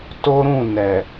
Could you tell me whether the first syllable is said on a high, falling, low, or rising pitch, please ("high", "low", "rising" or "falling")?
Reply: high